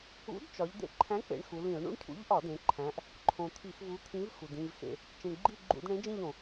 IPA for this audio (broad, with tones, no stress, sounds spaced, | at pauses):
ṵ˨˥ d t͡ʃ ɒ˩˧ ʎ d̪ ḛ˧˩˧ ǃʰ æ̃˨˥ k͡p ḛ˩˧ ɳ x u˩˧ l ĩ˧˩˧ ʊ̯ ɳ ṵ˦˨ ɳ cʰ ṵ˨˥ ʎ ʔ ɒ˧˩˧ d ẽ˩˧ ǃʰ æ̃˩˧ ʔ | ǃʰ õ˩ t̪ʰ i˧˩˧ x v u˨˥ t̪ʰ ĩ˨˥ v x u˩ d ĩ˦˨ v x ḛ˦˨ | t͡ʃ ĩ˩ ɳ ɡ͡ǃ i˦˨ ɡ͡ǃ ṵ˧˩˧ d ɳ ẽ˨˥ d͡ʒ ĩ˦˨ ʎ õ˩